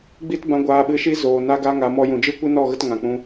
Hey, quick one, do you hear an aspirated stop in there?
no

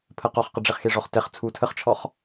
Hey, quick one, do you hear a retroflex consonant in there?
yes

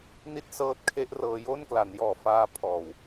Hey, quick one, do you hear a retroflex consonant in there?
no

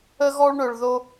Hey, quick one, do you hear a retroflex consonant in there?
yes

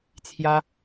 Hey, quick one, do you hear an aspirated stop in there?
yes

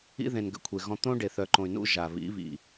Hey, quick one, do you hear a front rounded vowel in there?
yes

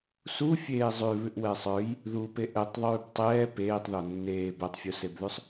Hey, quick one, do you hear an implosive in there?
no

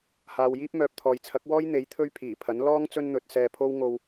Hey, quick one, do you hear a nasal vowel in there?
no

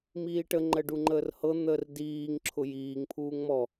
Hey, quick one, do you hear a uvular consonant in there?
no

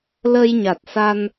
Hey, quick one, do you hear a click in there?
no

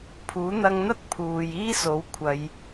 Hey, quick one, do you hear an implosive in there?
no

